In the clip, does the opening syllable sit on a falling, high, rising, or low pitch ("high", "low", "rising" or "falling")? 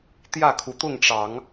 falling